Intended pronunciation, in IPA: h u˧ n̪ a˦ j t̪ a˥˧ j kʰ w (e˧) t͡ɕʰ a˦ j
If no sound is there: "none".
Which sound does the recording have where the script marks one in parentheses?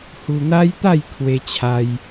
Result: e˦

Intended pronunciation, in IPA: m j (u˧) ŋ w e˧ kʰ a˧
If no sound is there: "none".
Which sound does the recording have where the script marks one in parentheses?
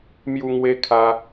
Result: u˧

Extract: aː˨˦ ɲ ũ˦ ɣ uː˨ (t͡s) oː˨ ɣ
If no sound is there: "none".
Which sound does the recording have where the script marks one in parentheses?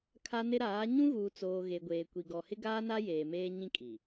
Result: t͡s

